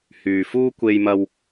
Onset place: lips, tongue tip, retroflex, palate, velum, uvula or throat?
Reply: throat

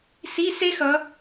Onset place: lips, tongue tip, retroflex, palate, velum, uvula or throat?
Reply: tongue tip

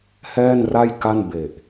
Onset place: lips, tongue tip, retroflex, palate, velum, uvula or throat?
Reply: throat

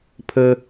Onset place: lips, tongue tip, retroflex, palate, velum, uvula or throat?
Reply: lips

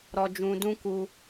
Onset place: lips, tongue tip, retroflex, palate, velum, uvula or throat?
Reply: tongue tip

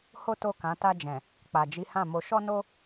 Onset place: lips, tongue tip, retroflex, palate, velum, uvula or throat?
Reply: throat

